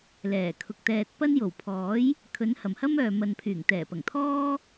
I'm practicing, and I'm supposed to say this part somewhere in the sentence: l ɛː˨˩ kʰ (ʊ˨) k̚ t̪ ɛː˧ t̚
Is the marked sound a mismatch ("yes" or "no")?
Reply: no